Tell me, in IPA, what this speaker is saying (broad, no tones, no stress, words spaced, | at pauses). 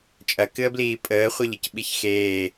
t͡ʃʼɐkɨə̯bliː pʼəːχʷeʎɨc ɓiçxeː